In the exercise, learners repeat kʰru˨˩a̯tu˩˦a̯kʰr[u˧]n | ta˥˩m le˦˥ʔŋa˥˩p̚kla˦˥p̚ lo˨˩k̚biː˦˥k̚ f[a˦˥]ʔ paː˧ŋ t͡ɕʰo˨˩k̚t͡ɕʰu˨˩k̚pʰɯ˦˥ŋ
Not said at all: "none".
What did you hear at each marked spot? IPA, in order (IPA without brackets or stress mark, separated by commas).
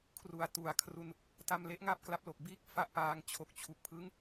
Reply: u˧, a˦˥